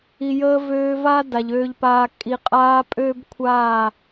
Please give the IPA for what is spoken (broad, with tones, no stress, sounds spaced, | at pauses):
i˨ j əː˧ v øː˧ v a˦ d a˨ ʎ øː˧ ʎ p aː˧ kʼ i˨ qʼ aː˧ pʼ øː˦ b kʷʰ aː˦˨